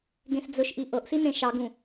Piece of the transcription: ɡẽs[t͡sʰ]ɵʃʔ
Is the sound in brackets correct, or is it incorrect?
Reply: incorrect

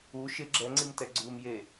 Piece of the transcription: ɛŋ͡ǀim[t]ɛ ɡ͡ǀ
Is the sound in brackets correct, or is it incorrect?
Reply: correct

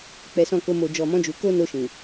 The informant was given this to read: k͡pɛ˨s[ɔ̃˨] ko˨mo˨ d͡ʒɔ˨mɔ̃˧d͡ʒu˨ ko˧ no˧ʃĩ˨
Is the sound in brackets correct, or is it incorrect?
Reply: correct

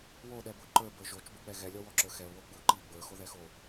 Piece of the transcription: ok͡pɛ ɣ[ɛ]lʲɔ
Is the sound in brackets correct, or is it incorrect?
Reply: correct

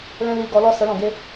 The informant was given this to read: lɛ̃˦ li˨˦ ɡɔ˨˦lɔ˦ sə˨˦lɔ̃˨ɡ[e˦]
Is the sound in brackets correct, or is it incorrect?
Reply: correct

